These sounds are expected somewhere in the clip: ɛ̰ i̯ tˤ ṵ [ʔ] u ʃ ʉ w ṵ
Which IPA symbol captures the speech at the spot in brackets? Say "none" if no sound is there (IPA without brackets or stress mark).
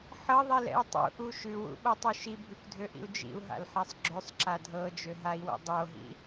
ʔ